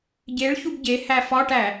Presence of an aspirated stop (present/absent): absent